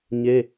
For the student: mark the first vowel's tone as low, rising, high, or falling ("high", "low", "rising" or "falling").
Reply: high